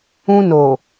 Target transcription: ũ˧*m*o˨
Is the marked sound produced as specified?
no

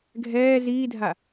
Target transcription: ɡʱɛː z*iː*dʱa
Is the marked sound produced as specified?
yes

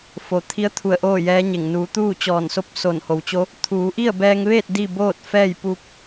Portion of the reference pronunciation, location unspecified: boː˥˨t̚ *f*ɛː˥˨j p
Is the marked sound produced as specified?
yes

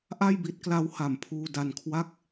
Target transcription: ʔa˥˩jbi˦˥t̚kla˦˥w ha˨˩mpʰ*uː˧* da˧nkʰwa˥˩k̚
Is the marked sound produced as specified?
yes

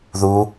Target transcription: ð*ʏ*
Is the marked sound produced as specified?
no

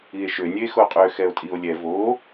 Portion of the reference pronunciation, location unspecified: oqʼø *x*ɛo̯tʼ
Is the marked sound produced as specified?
yes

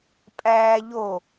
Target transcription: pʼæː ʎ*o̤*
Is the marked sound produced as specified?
no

